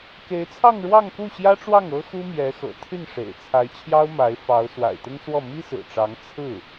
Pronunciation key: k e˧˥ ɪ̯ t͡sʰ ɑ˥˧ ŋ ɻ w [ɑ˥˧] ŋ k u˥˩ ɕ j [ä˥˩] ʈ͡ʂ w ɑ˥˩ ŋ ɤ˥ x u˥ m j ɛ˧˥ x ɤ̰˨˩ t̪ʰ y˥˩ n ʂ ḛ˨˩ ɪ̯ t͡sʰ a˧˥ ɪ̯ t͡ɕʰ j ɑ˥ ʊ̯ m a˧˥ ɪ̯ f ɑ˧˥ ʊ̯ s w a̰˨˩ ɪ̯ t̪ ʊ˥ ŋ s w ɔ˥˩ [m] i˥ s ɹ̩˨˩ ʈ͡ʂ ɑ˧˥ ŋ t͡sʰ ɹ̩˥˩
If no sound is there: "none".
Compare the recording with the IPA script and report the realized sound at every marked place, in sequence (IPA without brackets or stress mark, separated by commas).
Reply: ɑ˥˧, ä˥, m